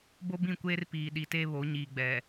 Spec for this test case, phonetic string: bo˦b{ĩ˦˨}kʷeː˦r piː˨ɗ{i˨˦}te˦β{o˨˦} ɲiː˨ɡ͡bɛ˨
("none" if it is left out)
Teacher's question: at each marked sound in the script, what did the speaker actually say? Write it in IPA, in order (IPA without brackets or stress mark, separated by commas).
ĩ˦˨, i˨, o˨˦